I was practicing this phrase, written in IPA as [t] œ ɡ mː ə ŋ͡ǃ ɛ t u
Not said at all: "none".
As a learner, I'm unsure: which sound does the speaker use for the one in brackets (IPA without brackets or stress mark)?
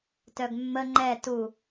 t